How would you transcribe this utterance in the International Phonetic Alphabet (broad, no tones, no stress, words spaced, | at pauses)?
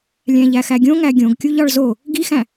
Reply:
lʲæ̃ʎæxæɡʲõ ŋæɡʲõɡkʲuʎ ɒɭzo | ɡixæ̃